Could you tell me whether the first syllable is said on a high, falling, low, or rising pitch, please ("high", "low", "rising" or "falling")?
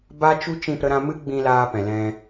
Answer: high